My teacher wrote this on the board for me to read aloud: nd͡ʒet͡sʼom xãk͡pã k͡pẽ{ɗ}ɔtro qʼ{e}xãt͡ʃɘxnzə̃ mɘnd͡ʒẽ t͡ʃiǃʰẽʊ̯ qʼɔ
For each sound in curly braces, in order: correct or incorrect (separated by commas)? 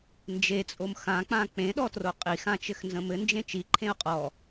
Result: correct, incorrect